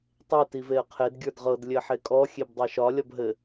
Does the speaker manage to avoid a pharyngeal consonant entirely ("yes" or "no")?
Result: no